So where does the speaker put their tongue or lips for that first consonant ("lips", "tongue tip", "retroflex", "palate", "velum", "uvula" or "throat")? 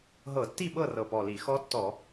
throat